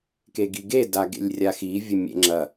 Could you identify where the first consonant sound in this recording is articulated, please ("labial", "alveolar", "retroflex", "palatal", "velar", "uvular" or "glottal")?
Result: velar